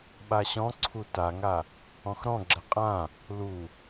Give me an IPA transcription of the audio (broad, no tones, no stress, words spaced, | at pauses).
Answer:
ɓaɕɔ̃ǀʰu taŋa | ɔ̃xɾɔ̃ɡ͡ǁɛ qʼã | lu